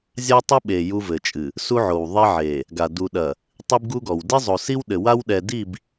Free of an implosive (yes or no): no